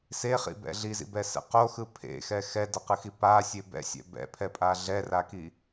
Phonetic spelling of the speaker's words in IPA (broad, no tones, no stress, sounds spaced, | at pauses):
s e χ ḭ b ɛ̰ ɮ i z ḭ b ɛ s ɛ̰ q o x ɯ pʰ ḛ x ɛ x ɛ d ʌ q ɯ x i p a sʲ e b ɛ̰ sʲ ɛ̰ b ɛ̰ pʰ ɛ pʼ a ɮ ɛ r a k i